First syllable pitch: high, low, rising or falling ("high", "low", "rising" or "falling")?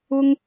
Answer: high